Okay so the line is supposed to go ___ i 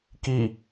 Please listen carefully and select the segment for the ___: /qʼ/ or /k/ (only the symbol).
k